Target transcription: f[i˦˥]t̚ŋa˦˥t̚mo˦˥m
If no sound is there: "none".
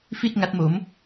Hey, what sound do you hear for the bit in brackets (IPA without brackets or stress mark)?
i˥˩